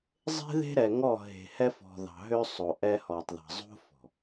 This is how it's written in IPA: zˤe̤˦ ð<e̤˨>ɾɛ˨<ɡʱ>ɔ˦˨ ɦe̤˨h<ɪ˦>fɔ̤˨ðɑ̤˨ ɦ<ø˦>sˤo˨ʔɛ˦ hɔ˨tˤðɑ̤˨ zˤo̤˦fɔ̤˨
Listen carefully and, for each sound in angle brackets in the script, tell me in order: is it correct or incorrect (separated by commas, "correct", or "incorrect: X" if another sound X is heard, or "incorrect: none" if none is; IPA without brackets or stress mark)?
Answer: incorrect: e̤˦, incorrect: ŋ, incorrect: ɛ˦, correct